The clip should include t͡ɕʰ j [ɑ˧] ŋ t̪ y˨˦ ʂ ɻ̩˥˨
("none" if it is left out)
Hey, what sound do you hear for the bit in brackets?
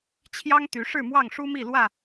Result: ɑ˦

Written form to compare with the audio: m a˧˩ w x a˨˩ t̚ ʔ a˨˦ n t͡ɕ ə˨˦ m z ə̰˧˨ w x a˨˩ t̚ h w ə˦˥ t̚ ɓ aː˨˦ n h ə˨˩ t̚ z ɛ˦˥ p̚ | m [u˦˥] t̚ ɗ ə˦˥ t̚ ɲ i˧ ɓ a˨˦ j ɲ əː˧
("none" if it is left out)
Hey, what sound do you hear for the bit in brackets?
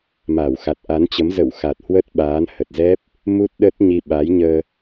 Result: u˦˥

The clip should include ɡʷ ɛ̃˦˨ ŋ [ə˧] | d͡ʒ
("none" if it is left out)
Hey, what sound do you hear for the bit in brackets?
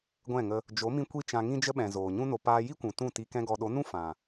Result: ə˧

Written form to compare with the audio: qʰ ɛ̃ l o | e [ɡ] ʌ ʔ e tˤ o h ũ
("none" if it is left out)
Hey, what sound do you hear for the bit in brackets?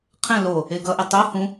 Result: ɡ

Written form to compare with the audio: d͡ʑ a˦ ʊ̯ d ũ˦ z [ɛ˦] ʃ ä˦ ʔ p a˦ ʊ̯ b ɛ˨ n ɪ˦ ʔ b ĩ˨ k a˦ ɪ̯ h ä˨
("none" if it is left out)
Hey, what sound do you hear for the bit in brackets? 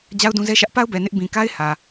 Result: ɛ˦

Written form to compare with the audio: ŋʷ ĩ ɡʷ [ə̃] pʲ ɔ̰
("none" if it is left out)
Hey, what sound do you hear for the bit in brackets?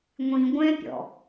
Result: ɛ̃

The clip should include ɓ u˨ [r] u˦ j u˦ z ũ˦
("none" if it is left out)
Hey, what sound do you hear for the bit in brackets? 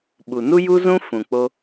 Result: n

